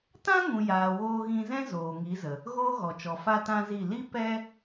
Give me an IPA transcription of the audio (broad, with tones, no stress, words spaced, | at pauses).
tã˦ŋũ˨jaː˨ woː˧ɣĩ˧zɛ̃˦ zoː˨ŋi˨˦zə˨ | ɣoː˦ɣɔ˨t͡ʃɔ˨ fa˦tã˦zi˦˨ li˦ pɛ˦